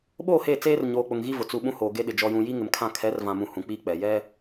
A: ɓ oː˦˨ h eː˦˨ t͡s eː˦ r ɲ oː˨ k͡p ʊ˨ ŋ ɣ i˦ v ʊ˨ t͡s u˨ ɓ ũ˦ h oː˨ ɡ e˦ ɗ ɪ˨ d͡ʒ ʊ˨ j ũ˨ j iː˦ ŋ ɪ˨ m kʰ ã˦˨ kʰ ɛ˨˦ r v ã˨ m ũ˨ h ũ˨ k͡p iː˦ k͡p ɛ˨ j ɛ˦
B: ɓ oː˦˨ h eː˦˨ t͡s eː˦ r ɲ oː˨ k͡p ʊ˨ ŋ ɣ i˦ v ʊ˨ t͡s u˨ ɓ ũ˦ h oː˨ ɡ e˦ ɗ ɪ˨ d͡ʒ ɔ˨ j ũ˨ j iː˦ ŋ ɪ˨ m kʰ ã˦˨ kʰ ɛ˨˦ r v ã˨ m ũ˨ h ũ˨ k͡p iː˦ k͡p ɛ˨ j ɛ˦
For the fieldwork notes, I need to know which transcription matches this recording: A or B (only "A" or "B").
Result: B